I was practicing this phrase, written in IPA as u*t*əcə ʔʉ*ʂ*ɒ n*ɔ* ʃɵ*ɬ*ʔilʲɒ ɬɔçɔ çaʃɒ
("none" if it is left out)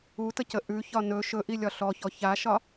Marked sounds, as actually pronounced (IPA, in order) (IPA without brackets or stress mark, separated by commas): t, ç, ɵ, none